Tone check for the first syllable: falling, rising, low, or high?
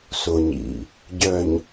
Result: low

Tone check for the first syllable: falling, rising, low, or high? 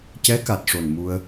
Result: rising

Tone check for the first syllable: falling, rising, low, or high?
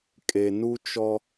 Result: low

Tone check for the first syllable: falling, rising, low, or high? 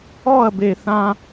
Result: falling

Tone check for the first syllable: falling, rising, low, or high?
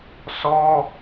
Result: high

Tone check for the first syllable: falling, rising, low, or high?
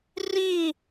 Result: falling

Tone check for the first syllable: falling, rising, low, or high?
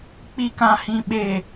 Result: low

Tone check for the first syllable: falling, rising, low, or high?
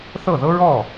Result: falling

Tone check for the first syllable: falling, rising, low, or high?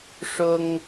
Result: high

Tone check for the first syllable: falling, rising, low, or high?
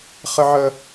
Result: high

